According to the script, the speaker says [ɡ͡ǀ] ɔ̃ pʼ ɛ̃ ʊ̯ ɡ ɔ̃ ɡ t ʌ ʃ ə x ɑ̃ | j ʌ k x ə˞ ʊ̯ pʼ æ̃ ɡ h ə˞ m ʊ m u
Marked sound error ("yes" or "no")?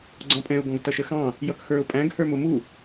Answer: no